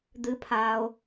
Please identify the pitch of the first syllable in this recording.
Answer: high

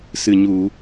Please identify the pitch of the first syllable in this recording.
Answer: low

